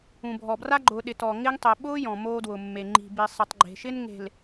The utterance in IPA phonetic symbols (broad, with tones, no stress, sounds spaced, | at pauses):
ũ˨ bʱ ɔ˨ b r a˦ ɡ͡ǃ ʊː˨ ɗ ɪ˨ t ɔ˨ ŋ ɪ˦ ŋ tˤ e˨ ɓ ʊː˦ j ɔ̃˨ m oː˦ d w ʊ˨ mː e˨ ŋ͡ǃ i̤˨ b i˨ sˤ i˨ tˤ ɡ͡ǃ e̤˨ ʃ ɪ˦ n ŋ e̤˨ l